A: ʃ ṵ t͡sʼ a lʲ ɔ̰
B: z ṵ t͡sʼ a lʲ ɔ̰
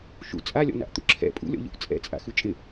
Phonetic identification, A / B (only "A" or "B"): A